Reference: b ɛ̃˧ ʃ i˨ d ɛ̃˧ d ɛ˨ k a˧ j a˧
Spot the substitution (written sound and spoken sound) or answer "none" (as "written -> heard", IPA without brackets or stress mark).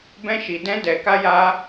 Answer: none